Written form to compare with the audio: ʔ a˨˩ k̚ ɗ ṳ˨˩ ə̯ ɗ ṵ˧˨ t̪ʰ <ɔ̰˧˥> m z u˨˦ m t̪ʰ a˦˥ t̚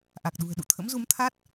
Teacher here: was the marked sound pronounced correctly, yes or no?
no